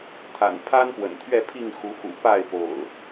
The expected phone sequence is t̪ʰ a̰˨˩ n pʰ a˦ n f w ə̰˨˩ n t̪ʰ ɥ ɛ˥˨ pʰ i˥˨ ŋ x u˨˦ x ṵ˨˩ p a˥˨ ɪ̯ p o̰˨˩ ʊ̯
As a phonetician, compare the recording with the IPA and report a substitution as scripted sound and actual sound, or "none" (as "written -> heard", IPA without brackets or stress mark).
f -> p